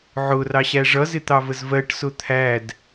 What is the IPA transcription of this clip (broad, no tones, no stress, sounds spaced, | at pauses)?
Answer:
ʕ ʊ r ɑ ɕ æ ʐ ʌ z ɪ t̪ ɑ v ə z v ɜ ʈ s ʊ t̪ʰ æ d